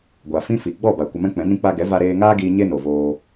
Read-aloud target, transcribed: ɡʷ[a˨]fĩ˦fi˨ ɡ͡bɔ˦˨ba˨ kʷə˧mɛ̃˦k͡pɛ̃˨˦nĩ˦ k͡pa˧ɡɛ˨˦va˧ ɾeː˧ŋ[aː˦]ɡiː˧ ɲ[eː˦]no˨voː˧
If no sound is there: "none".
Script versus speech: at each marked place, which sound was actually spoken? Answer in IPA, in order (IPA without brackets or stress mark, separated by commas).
a˨, aː˦, e˦